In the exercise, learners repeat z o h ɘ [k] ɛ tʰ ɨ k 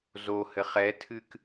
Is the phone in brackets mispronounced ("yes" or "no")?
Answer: yes